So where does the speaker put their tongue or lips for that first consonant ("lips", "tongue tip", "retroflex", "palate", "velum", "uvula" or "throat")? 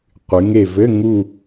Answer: uvula